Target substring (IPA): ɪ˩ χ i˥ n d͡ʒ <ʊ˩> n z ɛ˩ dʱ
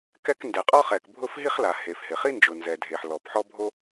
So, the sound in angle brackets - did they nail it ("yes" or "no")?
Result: yes